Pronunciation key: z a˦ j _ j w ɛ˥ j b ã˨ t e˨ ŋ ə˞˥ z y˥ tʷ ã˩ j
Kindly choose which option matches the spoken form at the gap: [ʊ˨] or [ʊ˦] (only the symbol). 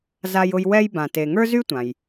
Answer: ʊ˦